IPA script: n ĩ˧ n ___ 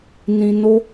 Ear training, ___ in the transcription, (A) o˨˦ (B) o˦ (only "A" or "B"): B